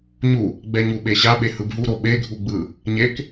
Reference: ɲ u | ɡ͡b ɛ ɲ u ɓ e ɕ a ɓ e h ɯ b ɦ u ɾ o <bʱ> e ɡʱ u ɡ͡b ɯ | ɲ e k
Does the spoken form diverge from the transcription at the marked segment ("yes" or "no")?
yes